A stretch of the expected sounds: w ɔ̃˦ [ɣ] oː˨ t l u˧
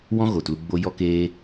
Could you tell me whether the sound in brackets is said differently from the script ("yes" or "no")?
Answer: no